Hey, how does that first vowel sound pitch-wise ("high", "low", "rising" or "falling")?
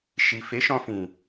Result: low